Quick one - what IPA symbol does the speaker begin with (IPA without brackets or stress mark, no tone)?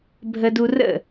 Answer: bʱ